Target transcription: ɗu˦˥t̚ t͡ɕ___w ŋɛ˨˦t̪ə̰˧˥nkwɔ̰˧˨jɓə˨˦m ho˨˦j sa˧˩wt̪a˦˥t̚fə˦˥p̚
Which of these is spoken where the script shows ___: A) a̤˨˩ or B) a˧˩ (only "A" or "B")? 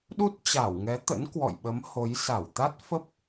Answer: B